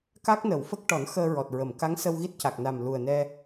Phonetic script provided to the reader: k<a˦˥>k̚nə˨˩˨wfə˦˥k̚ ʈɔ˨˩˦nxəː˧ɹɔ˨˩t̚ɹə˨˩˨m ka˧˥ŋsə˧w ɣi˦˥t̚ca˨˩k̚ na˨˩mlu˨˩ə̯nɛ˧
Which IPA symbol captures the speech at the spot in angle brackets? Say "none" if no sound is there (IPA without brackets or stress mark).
a˦˥